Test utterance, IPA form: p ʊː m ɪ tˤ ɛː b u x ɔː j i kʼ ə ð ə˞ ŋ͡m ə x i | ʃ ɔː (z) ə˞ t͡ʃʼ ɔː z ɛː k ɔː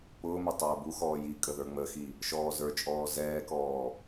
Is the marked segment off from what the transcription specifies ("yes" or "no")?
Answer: no